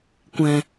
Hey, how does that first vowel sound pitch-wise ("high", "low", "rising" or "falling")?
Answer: low